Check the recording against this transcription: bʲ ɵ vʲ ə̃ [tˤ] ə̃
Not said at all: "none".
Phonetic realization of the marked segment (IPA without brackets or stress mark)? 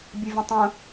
tˤ